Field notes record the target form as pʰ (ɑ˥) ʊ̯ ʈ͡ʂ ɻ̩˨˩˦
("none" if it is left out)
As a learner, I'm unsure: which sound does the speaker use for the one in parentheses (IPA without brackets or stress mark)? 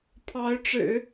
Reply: ɑ˧˥